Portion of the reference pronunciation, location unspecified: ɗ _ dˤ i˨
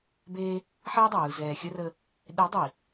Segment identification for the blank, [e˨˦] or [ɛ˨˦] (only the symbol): e˨˦